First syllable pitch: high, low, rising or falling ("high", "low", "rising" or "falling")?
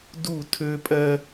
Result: falling